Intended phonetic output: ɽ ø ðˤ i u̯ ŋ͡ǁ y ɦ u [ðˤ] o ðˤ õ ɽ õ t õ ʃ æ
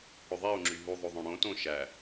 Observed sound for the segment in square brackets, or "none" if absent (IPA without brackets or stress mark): ðˤ